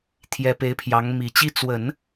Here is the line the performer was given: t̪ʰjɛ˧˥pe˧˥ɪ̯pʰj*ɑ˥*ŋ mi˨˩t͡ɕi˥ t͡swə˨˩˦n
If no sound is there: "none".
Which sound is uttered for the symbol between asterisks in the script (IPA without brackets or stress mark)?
ɑ˧˥